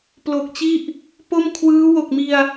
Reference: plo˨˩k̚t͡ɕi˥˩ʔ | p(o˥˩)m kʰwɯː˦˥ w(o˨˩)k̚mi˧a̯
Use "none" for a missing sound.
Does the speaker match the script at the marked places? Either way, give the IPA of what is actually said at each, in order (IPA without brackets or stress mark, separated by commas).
o˥˩, o˨˩